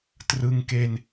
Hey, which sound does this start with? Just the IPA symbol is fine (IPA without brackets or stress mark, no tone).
t